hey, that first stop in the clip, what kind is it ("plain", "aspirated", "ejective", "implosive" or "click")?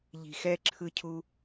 click